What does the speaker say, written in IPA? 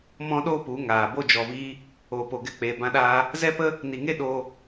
m ɔ̃˦ ɗ oː˦ p u˨˦ ŋ aː˨ b o˧ d͡ʒ ɔ˨ v iː˧ | oː˨ p o˨ ɡ ɛ˧ k͡p eː˨ b ã˧ ɗ aː˧ | z ɛ˦ p ə˦ | n i˨ ŋ e˦ ɗ oː˧

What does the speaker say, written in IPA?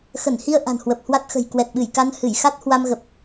x ə˧˩ n h i˧ ə̯ ʔ a̤˨˩ n h w ə˨˩ p̚ h w a˦˥ t̚ x ə̤˨˩ j k w ɛ˨˩ t̚ ɓ ɨ˧˩ j k a˧ n h ɨ˧˩ j x a˦˥ t̚ h w a˧ m ɣ ə˨˩ p̚

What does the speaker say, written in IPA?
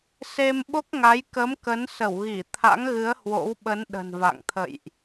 s e˧ m ɓ o˦˥ k̚ ŋ a˨˦ j k ə˨˦ m k ə˨˦ n s ə˧˩ w ɣ i˧˩ t̪ʰ a̰˧˥ ŋ ɣ ɨ˨˦ ə̯ h w o̰˧˥ w ɓ ə˨˦ n ɗ ə̤˨˩ n v a̰˧˨ ŋ t̪ʰ ə̰˧˨ j ʔ

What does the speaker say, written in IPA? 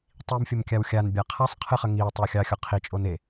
tˤ i m fʲ ə m kʲ a w xʲ a n bʲ a qʰ a sˤ qʰ ɨ χ ə ŋ i o̯ tˤ ʏ w xʲ ɑ xʲ ɔ qʰ i t͡ʃʼ o n e

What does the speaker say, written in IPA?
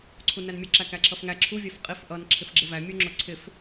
ǀʰ u n æ n mʲ ʊ ǁ æ k æ ǁʰ ʌ f ŋ æ ǁʰ u vʲ æ f qʼ i f ʔ ʌ n ǁʰ ɪ f ɡ͡ǁ ɪ v æ mʲ u ŋ͡ǁ ʊ ǀʰ ɪ f

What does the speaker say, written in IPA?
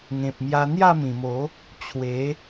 ŋ ẽ˨ p̚ m j a˧ n̪ j a˥˧ m ĩ˨˩ m o˨˦ | t͡ɕʰ w e˨˦

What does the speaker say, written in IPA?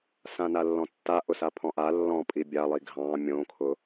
s ã n a lː ɔ̃ tː a ʔ ʊ s a pʰ ɔ̃ ʔ a lː ɔ̃ pʼ i bʲ a lˠ i ɡʱ ɑ̃ mʲ õ kʰ ʊ

